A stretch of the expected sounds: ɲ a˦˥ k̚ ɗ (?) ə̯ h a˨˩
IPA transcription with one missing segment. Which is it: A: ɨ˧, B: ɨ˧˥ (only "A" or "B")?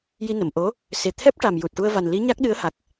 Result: B